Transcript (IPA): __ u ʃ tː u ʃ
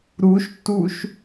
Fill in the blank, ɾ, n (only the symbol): ɾ